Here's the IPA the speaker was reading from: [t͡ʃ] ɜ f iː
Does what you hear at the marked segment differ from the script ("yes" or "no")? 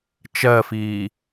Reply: no